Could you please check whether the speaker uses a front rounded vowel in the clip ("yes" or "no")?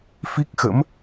no